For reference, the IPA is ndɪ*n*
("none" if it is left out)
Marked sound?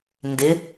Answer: none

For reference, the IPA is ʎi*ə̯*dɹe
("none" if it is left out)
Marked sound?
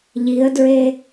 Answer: ə̯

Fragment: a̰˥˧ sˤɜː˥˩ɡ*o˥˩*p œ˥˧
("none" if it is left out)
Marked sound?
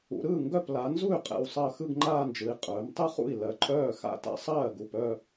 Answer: u˥˩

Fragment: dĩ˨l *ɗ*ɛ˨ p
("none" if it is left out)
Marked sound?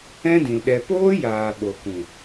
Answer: ɗ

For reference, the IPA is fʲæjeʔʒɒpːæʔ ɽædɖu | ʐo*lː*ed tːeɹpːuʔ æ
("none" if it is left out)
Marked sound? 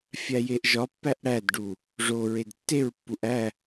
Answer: ɹ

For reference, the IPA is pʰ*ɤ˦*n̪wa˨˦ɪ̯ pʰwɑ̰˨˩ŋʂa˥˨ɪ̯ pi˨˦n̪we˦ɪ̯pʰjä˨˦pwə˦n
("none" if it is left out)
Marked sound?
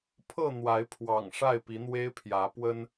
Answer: ɤ˥˨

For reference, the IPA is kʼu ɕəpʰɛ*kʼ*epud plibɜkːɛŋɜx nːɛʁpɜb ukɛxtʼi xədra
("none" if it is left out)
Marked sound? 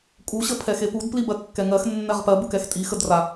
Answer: x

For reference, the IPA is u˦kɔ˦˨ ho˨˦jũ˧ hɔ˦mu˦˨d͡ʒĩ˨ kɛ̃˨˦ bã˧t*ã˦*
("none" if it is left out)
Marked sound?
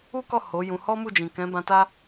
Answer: a˦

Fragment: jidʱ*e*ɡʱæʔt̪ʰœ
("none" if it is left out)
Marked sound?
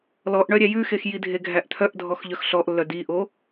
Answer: e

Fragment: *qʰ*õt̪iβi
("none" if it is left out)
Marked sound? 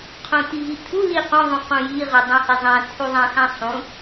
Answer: qʰ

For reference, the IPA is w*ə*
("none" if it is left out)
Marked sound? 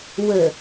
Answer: ə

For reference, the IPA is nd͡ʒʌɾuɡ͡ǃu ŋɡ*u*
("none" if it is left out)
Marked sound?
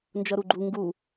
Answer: u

